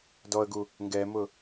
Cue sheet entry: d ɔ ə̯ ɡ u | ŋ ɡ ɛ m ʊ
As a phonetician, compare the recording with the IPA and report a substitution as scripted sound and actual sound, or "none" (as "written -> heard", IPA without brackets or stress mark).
none